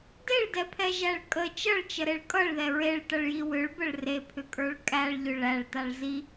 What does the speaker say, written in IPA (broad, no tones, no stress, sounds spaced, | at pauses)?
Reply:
d e ɭ d ɛ pʰ ɛ ʒ æ ɭ kʼ ə t͡ʃ ʌ ɭ t͡ʃ ə ɾ e ɭ kʼ ʌ ɭ ð ɛ ɹ e ɭ t ʌ ɭ j i w ʏ ɭ b ə ɭ r e pʰ ʏ kʼ ə˞ ɭ kʼ æ ɭ ʎ ʏ ɭ æ ɭ t a ɭ z i